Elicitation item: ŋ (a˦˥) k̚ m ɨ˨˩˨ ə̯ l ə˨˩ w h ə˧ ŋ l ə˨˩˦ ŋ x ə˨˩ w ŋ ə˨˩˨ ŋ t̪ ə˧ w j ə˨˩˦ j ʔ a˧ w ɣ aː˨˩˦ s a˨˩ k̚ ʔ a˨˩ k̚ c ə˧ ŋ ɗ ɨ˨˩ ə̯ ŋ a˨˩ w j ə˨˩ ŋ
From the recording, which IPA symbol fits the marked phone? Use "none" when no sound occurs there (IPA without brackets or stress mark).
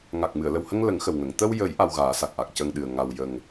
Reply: a˨˩